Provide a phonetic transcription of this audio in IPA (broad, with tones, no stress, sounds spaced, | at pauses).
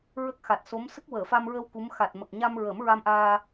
ɹ ə˦˥ k̚ x a˨˩ t̚ s o˧˥ m s ə˦˥ k̚ w əː˨˩˨ f a˧ m ɹ ə˧ w k u˧˥ m x a˨˩ t̚ m ə˨˩ k̚ ɲ a˧ m ɹ ə˨˩˦ m ɹ a˧ m ʔ aː˧